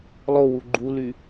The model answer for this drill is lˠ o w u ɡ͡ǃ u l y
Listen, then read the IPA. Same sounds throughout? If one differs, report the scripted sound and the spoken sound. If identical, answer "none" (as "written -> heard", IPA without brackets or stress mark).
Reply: none